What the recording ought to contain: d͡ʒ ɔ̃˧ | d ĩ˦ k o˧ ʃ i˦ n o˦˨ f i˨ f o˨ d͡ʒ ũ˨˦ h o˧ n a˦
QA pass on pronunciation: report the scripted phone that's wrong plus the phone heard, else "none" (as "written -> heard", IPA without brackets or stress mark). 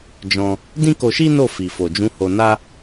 none